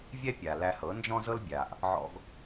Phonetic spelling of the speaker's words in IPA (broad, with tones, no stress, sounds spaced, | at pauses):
vʲ ɛ˥ pʲ a˩ l æ˧ h ɤ˩˥ n d͡ʒ ɔ̃˥ z ɤ˥ l bʲ a˩ ʔ | ʕ ɔ̰˧ ɡ